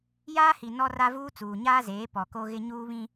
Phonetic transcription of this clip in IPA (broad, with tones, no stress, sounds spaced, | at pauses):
j aː˦ h i˨ n ɔ˦ r a˦ v uː˦ t͡s uː˨ ɲ aː˦ z eː˨˦ p ɔ˨ k o˦ ɣ ɪ˦ ɲ uː˦ β ĩ˦